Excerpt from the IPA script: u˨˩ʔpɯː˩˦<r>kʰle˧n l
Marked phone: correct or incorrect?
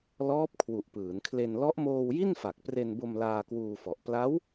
incorrect: n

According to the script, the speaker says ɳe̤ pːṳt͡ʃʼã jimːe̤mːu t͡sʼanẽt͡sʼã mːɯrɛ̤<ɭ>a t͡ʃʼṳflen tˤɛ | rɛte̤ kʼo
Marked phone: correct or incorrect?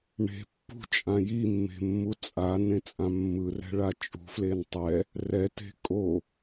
correct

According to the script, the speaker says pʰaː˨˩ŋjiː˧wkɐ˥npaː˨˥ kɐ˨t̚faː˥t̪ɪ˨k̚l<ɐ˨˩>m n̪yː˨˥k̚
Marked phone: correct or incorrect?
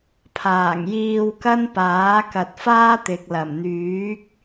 correct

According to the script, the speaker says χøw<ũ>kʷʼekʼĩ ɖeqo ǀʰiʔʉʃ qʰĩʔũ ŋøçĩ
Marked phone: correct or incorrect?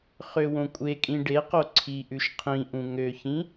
incorrect: õ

